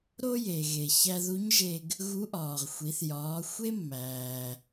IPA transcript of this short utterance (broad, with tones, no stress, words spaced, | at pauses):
ɾo˥je˩ ɣe˩çæ˧ðu˧˥ɲʒe˧ɡ | ɣu˧˥ʔɒː˩ʁxʷi˩˧θ jɒː˩˧ xʷe˥mːæː˩